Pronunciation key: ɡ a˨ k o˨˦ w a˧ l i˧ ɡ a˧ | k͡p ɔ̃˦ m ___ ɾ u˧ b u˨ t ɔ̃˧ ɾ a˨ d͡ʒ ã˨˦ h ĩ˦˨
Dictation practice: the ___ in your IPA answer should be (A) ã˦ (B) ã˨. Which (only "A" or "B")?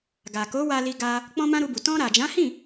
A